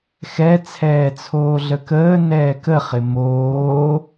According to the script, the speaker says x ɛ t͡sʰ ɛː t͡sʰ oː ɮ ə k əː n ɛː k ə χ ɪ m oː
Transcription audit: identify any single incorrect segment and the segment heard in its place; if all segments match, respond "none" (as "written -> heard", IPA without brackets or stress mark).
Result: none